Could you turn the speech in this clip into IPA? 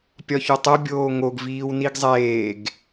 pʲɒçotˤo bʲoːŋoɡ viːwniɡzˤeːɡ

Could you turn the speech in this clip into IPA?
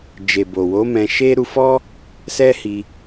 d͡ʒe˨bo˨wo˨˦ mɛ̃˧ʃe˦ ɾu˧fɔ˦ | sɛ˦hi˧

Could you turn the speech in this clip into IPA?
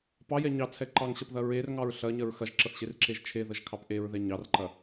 pɑjɛ ɲɑt͡sʰɛ ǃɑŋɕɐpðɐ ɹerŋɑɹ ɬɐɲɐɹ xɐʒǁɐθɕerǁeʒ t͡ʃʰeðəʒkʰɑp ʔeɹðɛ ɲɑrǃɐ

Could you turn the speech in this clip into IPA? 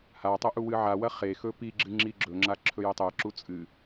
hatˤɵʔu wɨʕawɐ χexɵ pi ɡ͡ǁɨŋ͡ǁiɡ͡ǁɵŋ͡ǁa ǁʰɵjetˤeǁu t͡sʼɨ

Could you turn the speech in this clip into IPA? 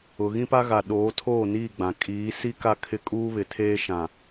ʊ˨ ɣĩ˦pa˦ɣa˨ ɗoː˨˦tʰoː˦˨niː˦˨ɡ͡bã˨ kʼiː˨˦si˦ ka˦˨kʰɪ˦ kʼuː˦βɪ˨tʰeː˦ ʃã˨

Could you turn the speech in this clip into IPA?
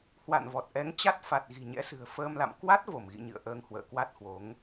hwa̰˧˨nvɔ˨˩t̚ ʔɛ˨˦ŋt͡ɕa˦˥t̚ fa˨˩t̚ɣi̤˨˩ɲɛ̰˧˥sɨ̤˨˩ə̯ fəː˧mla̰˧˨m kwa˦˥t̚ vo˧˩mɣḭ˧˨ɲɨ̰˧˨ə̯ ʔəː˧ŋhwə̰ː˧˨ kwa˦˥t̚hwo˨˦ŋ

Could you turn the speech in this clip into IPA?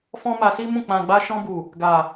fɔ̃˦ma˧si˦mũ˦˨ k͡pã˨ ɡ͡ba˧ʃɔ̃˧bu˨ | ɡa˨

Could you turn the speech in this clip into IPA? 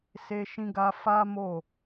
se˧ʃĩ˧ɡa˧ fa˦mo˦˨

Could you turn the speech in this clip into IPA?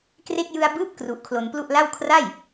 kre˥˩k̚ jɯ˧a̯bɯː˦˥p̚ kru˦˥ʔ kʰlo˧nplu˥˩ʔla˥˩w kʰra˥˩j

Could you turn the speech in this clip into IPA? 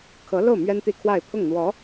kʰɤ˧˥lo˥˩ʊ̯ mɥɛ˥nt̪i˥˧kʰwa˥˧ɪ̯ pʰʊ˥˩ŋn̪wɔ˧˥

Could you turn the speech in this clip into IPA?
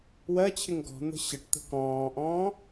wɜt͡ɕʰɪŋ ɡɔ̤n̪ə̤ ɕəʈt̪ə̤ kɔ̃ːʔɔ̃ː

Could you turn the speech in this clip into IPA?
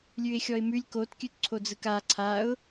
lʲʉɪ̯xʲɔɪ̯mʉlʲ kotkʲʉt ǀʰod͡zɯka ǀʰaʊ̯

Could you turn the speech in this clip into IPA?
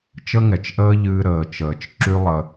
t͡ʃə˦ŋɛ˨t͡ʃʔəː˦ʎɨː˧ ɾəː˨t͡ʃəː˨t͡ʃ ǁy˦lˠə˧

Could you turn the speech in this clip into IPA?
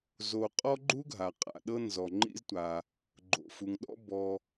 zo˨qʼɔ˥ ɡ͡ǃu˥ɡʱa˩ qʼa̰˩ɗɤ˦ nzɔ˩ ŋ͡ǃḭ˦ztʷa˩ | ɡ͡ǃo̰˩fu˩ŋɗɔ̰˦ bɔ˨

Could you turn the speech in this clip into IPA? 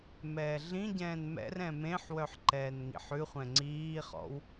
mɛːɮĩɟɛ̃ːn mɛ̰rɛ̃ mẽħwœħ ǃɛːnŋḭħʉχʷɛ̃ ŋ͡ǀiːχɔ̰w

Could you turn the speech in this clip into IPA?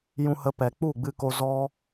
jũ˧hə˧pɛ˨ k͡pu˦˨ɡ͡bɨ˧ko˧ zɔ˦

